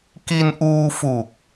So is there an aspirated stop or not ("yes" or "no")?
no